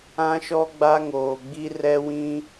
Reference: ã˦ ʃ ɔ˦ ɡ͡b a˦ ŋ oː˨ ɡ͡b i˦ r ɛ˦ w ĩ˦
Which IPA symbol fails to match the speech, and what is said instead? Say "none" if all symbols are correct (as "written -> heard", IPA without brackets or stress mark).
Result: none